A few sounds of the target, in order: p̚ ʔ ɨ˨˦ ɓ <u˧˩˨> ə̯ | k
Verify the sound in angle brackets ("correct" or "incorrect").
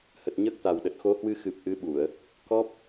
correct